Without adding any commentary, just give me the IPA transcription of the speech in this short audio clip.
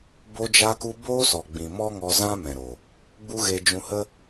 b o˧ d͡ʒ a˧ k u˧ b oː˦ s ɔ˨ ɡ͡b ĩ˨ m ɔ˦ ŋ ɔ˧ z ã˦ m ɛ̃˨ ɾ o˨ | ɡ͡b u˦ ɣ e˧ d͡ʒ ũ˧ h ə˦

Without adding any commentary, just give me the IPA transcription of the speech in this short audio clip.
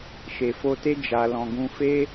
ʃ e˨ f o˧ t e˦ d͡ʒ a˧ l ɔ̃˧ ɡ ũ˧ f e˦

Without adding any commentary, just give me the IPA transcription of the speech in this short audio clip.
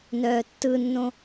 n œː tː ɯ nː õ

